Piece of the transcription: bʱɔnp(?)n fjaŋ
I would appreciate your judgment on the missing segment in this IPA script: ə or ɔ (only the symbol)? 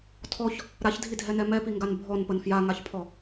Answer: ə